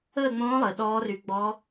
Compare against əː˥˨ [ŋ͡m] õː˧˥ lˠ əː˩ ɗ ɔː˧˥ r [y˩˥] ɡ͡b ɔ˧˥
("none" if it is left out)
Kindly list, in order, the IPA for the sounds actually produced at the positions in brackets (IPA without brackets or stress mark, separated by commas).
ŋ͡m, y˩˥